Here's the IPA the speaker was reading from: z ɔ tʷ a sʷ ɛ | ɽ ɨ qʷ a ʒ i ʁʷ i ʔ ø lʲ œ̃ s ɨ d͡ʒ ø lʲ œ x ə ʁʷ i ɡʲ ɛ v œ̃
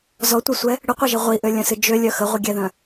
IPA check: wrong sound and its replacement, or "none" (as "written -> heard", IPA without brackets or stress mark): v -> ð